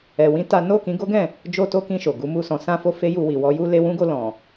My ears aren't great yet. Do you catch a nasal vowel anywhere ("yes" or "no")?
yes